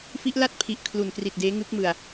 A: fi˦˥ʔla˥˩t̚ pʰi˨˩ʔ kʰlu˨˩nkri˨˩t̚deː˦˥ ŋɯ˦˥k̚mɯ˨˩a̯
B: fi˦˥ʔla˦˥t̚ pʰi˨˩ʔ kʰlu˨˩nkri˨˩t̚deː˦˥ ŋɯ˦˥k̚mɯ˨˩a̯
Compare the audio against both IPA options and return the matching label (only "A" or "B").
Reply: A